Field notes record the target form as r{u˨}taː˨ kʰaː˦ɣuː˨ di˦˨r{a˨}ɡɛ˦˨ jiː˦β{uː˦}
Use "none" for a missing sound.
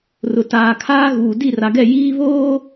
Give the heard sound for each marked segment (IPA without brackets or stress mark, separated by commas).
ʊ˨, a˨, oː˦